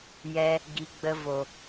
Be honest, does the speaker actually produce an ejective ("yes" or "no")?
no